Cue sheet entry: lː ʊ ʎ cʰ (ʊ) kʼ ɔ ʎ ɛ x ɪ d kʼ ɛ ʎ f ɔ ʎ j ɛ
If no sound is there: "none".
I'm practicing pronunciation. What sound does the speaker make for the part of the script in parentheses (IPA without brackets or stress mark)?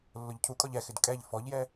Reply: u